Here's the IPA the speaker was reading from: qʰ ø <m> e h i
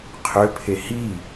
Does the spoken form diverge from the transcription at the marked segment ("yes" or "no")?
yes